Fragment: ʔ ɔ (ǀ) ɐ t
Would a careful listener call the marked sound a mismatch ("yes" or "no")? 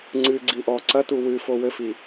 no